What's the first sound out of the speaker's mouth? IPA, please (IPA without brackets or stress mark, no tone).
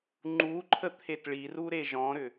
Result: ŋ͡ǃ